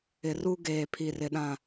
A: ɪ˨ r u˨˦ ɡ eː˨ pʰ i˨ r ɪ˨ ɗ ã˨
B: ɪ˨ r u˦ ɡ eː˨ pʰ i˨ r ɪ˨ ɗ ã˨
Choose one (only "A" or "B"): B